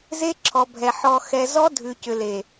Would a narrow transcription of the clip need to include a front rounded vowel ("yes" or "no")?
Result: yes